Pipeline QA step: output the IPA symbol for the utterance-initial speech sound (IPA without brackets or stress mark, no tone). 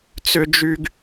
t͡s